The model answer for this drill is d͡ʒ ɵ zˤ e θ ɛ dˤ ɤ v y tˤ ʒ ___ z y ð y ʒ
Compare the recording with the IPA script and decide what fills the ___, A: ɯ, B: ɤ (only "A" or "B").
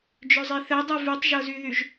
B